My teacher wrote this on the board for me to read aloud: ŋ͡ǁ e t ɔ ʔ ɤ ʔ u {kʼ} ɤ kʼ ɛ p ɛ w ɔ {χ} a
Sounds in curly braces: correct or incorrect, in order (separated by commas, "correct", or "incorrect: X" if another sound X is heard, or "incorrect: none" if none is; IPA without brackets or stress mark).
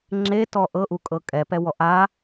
correct, incorrect: ʔ